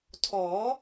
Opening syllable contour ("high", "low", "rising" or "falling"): rising